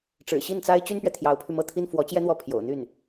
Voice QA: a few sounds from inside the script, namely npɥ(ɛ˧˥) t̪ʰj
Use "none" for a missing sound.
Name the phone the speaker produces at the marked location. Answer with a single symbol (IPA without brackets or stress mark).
ɛ˨